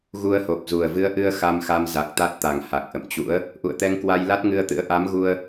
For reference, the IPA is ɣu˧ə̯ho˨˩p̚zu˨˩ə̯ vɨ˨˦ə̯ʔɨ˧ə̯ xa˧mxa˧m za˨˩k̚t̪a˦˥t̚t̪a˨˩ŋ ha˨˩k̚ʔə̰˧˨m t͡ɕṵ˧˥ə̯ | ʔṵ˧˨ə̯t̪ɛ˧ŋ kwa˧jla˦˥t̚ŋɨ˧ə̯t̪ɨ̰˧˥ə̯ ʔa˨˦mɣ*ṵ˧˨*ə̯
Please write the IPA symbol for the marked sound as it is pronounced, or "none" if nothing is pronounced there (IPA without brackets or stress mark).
u˧